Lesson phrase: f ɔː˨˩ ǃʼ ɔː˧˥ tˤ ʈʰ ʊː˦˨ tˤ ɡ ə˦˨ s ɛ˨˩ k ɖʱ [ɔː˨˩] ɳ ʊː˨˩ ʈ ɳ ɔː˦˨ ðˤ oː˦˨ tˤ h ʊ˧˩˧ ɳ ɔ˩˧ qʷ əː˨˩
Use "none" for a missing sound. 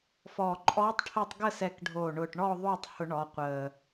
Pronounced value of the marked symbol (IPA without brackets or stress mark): oː˨˩